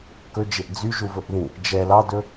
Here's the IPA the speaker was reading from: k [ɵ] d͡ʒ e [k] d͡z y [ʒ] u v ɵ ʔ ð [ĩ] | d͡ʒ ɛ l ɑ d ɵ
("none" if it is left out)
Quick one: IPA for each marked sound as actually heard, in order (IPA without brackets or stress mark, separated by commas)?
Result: ɵ, ʔ, ʒ, ĩ